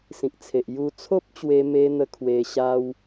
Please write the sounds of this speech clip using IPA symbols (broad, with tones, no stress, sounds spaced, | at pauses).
s ĩ˨ k̚ t͡sʰ e˨ ʔ j u˧ t͡sʰ o˦ p̚ t͡ɕ w e˧ m e˧ n̪ ə˧ kʰ w e˦ ɕ a˦ w